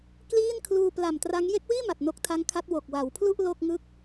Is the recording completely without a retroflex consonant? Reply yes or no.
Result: yes